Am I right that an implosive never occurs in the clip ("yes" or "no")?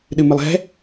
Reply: no